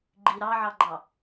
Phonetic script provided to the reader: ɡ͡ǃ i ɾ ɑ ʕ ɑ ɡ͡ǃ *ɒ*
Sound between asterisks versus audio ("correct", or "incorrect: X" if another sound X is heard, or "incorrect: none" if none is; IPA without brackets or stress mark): incorrect: ɑ